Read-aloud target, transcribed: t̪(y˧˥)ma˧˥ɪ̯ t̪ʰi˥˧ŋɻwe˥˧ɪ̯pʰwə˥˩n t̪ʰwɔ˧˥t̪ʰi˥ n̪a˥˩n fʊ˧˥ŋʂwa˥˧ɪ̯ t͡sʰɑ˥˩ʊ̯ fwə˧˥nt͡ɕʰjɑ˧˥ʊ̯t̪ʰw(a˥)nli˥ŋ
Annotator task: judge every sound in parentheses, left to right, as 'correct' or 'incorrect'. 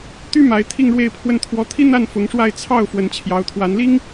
incorrect: y˥, incorrect: a˧˥

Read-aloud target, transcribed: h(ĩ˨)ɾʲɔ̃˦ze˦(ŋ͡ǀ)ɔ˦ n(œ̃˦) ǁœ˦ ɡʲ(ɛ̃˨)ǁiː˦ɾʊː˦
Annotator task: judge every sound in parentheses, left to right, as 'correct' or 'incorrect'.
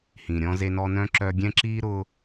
correct, incorrect: n, correct, incorrect: ɛ̃˦

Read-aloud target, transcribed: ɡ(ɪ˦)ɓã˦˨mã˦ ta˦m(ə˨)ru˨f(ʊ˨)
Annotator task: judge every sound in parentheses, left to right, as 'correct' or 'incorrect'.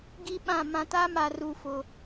incorrect: i˦, incorrect: a˨, correct

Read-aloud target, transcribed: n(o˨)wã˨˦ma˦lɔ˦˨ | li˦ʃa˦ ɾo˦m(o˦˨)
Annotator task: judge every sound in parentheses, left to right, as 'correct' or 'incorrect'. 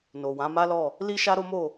correct, correct

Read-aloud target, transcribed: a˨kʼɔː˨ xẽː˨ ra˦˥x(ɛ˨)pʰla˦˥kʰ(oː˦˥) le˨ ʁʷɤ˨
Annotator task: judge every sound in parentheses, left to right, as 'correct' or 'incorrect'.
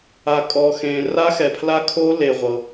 correct, correct

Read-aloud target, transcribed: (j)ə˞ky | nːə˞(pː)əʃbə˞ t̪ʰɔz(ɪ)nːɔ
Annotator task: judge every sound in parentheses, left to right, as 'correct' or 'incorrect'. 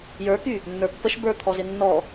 correct, correct, correct

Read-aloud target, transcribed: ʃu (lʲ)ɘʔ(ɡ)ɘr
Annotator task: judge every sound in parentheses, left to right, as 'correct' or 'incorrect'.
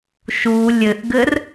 correct, correct

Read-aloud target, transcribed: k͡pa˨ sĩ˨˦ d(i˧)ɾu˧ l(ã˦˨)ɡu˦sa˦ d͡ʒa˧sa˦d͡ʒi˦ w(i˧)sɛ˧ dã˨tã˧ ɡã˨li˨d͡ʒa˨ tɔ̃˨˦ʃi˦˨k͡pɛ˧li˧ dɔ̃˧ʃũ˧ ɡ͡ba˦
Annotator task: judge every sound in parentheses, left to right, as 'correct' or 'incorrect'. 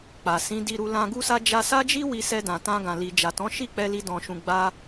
correct, incorrect: ã˧, correct

